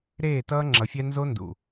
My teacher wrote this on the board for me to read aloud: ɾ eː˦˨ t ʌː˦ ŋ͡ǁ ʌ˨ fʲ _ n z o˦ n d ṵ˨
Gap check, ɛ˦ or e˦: ɛ˦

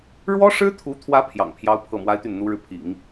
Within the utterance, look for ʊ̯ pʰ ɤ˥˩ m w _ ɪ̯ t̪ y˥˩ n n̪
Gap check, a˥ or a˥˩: a˥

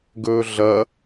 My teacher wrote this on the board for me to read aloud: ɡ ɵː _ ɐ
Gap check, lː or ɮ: ɮ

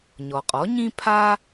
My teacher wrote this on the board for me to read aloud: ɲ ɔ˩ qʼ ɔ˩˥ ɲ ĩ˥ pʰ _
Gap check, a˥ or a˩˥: a˥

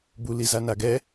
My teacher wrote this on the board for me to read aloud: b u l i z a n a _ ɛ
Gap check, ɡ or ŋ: ɡ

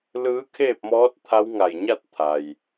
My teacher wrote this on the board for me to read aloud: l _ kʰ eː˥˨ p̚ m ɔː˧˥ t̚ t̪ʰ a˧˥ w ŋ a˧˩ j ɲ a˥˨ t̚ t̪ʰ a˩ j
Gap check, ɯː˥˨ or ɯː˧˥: ɯː˧˥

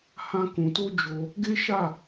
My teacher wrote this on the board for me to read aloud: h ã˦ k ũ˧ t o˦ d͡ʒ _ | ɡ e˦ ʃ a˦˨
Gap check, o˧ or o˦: o˧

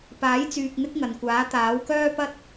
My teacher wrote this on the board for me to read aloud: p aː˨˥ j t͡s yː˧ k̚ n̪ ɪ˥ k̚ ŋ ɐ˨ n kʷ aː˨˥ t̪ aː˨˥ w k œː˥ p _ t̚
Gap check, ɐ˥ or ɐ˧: ɐ˥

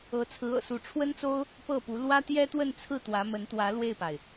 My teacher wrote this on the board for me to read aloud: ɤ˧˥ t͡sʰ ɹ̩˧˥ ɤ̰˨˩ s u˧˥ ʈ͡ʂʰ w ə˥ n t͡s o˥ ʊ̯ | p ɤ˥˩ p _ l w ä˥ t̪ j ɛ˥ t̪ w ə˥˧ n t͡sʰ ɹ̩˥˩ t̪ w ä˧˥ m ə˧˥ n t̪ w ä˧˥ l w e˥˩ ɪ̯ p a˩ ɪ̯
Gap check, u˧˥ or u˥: u˧˥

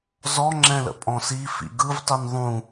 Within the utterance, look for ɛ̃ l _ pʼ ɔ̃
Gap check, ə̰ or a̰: ə̰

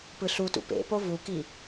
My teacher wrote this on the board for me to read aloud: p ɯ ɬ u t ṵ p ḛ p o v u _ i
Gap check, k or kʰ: k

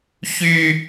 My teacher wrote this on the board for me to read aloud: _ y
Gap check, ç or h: ç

